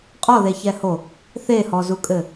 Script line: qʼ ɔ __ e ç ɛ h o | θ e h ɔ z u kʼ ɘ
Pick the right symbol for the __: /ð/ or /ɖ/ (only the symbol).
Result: ð